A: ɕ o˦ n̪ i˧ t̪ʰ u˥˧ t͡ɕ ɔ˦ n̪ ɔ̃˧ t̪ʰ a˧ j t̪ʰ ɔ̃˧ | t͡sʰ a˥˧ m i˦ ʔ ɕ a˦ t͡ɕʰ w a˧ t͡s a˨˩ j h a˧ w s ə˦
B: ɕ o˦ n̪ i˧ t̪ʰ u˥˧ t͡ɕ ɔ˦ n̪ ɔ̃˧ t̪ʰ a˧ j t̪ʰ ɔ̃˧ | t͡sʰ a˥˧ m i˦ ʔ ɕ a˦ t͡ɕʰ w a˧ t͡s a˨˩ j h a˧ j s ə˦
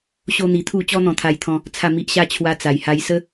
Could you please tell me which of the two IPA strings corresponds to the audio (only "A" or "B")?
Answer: B